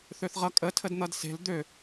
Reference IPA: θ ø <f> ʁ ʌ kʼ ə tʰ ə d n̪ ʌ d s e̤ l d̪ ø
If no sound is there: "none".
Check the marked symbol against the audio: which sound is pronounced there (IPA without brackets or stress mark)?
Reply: θ